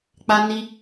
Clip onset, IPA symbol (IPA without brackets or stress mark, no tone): k͡p